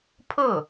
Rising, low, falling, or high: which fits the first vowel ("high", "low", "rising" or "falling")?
falling